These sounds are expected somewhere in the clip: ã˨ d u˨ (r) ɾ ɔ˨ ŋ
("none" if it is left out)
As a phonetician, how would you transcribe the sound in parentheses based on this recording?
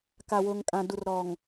r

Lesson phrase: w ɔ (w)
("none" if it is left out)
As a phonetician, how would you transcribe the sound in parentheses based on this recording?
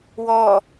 none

